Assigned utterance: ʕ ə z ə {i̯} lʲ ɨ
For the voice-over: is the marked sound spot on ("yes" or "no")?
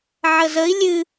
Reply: yes